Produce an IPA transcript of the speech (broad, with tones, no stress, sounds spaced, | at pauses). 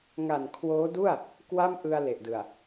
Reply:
ŋ a˨˩ n kʰ w oː˦˥ d u˥˩ a̯ | k w a˥˩ m ʔ ɯ˧ a̯ l e˨˩ ʔ d ɯ˨˩ a̯